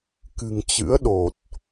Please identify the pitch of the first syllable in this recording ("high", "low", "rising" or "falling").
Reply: low